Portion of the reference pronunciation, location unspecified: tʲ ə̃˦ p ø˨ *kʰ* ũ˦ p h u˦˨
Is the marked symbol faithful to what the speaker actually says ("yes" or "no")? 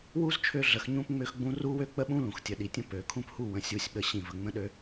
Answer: yes